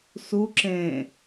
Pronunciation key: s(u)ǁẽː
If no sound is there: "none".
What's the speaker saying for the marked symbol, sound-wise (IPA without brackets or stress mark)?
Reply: u